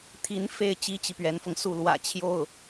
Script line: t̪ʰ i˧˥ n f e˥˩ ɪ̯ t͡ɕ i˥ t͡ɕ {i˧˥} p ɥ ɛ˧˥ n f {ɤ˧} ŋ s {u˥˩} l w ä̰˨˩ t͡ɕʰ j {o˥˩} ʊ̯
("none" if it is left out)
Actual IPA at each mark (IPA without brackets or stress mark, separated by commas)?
i˨, ɤ˧, u˥˩, o˥˩